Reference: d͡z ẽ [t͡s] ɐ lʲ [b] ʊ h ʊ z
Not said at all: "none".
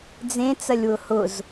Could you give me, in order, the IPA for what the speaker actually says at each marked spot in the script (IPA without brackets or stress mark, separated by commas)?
t͡s, w